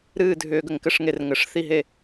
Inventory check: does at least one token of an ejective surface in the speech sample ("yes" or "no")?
no